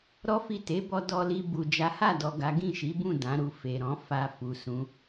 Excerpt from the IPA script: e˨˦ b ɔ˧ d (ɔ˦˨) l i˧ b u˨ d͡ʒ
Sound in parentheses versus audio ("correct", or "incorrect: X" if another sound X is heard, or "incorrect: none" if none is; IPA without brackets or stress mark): incorrect: ɔ˧